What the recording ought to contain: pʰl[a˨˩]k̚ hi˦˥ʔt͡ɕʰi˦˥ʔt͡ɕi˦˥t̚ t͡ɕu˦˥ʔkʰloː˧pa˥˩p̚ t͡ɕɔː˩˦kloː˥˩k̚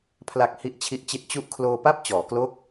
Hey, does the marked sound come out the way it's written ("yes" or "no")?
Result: yes